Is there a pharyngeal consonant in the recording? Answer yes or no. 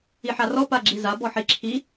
yes